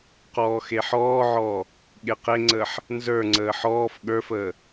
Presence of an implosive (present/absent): present